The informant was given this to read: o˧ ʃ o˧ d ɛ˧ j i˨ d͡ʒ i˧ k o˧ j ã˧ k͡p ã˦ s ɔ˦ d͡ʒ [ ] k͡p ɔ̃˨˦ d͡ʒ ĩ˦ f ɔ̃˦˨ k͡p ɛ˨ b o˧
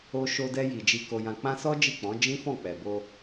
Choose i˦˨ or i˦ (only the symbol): i˦˨